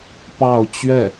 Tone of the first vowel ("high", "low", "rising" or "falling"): falling